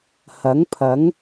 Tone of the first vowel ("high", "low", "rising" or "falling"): rising